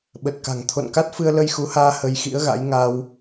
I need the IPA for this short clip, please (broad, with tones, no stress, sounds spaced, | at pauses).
ɓ ə˨˩ t̚ k a̤˨˩ ŋ t̪ʰ o̰˧˨ n k a˦˥ t̚ f ɨ˧ ə̯ l ə˧ j x u˨˦ h aː˧ h ə˧ j x ḭ˧˥ ə̯ ɣ a̰˧˥ j ŋ a˧ w